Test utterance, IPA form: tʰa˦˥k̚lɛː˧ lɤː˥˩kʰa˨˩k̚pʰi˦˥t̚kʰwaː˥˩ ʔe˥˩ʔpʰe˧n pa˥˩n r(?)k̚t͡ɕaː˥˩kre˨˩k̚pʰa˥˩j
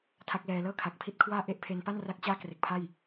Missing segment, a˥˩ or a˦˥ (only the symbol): a˦˥